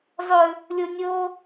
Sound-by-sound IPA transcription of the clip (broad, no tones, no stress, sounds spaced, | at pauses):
zˤ ɵ | lʲ o nʲ o